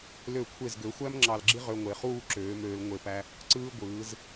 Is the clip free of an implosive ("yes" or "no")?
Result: yes